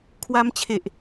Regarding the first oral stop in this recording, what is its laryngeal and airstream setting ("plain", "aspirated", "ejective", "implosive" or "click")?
aspirated